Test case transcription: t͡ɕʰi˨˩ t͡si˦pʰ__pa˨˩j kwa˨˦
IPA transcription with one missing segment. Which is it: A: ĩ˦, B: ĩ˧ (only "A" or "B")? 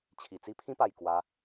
A